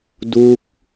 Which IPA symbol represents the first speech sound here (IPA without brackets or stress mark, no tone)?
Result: d